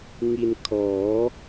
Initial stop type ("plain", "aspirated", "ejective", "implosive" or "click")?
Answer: aspirated